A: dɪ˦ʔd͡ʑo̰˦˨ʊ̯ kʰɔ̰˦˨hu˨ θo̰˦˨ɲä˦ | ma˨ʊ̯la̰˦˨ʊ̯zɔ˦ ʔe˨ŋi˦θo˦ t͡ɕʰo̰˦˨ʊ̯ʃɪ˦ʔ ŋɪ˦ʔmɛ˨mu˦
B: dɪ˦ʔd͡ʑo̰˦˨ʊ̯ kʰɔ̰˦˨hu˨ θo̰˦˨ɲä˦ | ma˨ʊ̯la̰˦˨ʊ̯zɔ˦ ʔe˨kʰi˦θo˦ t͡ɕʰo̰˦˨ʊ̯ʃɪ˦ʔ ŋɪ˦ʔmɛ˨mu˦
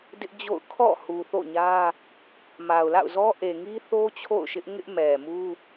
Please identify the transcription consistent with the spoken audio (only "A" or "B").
A